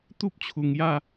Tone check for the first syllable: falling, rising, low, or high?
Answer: high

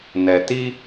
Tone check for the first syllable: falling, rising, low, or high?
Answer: low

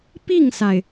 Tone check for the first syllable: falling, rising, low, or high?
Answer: falling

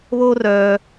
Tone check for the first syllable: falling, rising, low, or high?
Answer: high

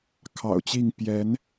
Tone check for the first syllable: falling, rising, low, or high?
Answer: low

